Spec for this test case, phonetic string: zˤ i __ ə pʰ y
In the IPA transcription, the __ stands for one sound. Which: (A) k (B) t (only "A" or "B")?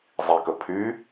A